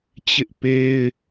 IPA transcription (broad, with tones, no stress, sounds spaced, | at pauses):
t͡ɕ ɪ˦ ʔ p e˦ ɪ̯